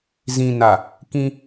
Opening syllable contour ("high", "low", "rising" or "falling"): low